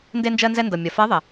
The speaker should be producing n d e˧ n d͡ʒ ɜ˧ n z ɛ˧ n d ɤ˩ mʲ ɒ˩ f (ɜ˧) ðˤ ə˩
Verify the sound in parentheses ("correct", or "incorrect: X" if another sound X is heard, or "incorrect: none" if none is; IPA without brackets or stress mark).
incorrect: ɜ˧˥